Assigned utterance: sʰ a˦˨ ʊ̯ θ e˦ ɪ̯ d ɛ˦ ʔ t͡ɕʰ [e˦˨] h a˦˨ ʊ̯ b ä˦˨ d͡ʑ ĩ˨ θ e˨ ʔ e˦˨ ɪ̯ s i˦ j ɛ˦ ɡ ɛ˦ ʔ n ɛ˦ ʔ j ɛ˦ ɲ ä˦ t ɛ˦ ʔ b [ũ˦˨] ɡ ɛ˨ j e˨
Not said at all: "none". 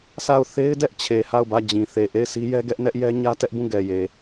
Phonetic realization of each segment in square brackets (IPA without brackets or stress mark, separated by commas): e˨, ũ˦˨